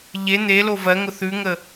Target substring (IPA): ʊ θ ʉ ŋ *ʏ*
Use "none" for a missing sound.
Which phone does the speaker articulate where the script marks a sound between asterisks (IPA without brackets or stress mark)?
ə